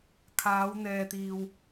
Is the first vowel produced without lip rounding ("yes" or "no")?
yes